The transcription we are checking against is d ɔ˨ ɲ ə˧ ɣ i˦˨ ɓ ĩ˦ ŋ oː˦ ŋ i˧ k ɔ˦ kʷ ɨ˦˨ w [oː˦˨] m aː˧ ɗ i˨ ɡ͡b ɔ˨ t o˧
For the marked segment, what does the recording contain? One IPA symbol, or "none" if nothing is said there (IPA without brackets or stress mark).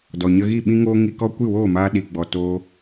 oː˦˨